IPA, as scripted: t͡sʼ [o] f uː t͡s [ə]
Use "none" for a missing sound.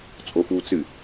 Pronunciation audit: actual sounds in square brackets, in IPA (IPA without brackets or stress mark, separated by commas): o, ɨ